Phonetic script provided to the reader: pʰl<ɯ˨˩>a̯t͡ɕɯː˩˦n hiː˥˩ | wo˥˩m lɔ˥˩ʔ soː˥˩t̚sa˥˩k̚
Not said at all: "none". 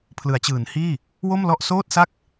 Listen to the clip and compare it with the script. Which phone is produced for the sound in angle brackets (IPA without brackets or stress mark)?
ɯ˩˦